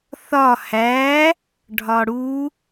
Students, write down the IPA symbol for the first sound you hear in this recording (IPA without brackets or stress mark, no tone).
θ